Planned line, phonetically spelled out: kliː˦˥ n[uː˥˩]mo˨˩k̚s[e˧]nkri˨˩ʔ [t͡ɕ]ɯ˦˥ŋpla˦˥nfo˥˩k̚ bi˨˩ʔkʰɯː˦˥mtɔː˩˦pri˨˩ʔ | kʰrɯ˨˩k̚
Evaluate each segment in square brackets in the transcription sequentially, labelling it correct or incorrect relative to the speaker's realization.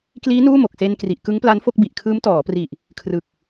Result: correct, correct, incorrect: k

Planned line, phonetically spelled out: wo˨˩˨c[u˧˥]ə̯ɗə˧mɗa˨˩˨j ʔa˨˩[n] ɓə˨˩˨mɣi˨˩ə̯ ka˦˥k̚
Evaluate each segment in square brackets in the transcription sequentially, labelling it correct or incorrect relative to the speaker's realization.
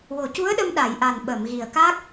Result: correct, correct

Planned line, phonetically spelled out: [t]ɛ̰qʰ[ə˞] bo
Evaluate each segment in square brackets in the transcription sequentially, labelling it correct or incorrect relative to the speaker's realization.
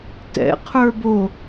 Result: correct, correct

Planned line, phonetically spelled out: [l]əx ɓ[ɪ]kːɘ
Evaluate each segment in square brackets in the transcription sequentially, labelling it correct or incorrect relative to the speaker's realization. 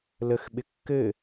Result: correct, correct

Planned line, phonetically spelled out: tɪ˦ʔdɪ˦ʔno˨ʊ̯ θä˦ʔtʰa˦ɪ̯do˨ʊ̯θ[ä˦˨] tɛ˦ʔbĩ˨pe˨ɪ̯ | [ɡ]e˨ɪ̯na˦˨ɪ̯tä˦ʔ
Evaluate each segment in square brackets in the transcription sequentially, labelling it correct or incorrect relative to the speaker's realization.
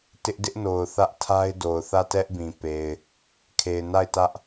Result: correct, incorrect: kʰ

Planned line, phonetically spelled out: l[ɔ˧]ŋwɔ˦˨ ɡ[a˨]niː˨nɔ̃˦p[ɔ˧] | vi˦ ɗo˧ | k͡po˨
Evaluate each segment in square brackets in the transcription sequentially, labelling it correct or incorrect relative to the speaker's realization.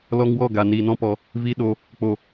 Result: correct, correct, correct

